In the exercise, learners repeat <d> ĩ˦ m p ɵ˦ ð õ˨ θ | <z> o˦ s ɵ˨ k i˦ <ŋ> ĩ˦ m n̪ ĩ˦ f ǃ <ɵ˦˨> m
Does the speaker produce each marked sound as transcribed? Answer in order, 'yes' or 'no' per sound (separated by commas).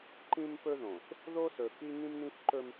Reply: no, no, yes, no